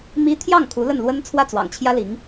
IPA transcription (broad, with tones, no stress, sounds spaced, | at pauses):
m i˥ t̪ʰ j ɑ˥˩ ŋ kʰ u˧˥ l ə˥˩ n l w ə˥ n t͡sʰ w ä˥˩ t͡s w ɑ̰˨˩ ŋ t͡ɕʰ j ä˥ l i˧˥ ŋ